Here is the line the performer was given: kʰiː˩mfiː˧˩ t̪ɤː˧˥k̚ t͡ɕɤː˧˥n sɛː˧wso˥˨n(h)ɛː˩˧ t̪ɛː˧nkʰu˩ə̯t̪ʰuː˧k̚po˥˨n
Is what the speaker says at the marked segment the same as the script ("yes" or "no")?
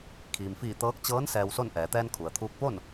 no